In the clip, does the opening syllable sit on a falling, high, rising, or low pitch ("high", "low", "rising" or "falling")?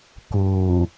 low